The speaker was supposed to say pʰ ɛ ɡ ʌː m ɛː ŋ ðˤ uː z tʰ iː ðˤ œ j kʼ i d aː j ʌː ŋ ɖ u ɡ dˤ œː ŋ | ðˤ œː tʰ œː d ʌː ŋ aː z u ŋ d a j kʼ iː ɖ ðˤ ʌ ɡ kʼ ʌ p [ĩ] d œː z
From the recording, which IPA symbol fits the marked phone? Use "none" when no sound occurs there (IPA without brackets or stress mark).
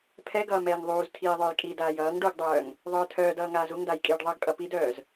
i